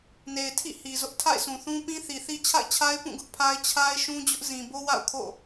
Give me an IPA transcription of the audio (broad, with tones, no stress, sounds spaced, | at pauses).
n e˨ ɪ̯ tʰ ḭ˦˨ h i˨ z ʊ˦ ʔ tʰ a̰˦˨ ɪ̯ sʰ ũ˨ θ ũ˦ p ĩ˦ θ i˨ θ i˦ t͡ɕʰ a̰˦˨ ɪ̯ t͡ɕʰ a˦ ɪ̯ p ũ˦˨ ɡ ʊ˦ ʔ pʰ a˦ ɪ̯ t͡ɕʰ a˦ ɪ̯ ʃ ũ˦ d͡ʑ ʊ˦ ʔ z ĩ˨ b o˦ w a̰˦˨ ʊ̯ kʰ o̰˦˨